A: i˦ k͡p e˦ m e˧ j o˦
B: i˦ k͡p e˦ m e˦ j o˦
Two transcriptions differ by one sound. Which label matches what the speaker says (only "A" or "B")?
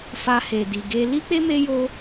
B